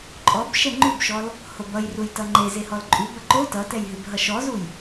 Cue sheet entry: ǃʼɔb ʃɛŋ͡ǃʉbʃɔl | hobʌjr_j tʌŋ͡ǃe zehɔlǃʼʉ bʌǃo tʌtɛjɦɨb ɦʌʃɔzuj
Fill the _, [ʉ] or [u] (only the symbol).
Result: u